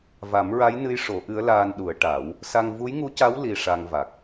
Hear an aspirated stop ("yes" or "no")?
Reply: no